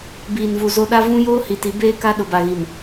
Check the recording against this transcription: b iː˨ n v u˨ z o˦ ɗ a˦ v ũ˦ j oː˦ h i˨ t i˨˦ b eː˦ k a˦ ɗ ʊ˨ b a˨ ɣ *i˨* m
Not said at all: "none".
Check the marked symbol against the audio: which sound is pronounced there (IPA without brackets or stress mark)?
i˨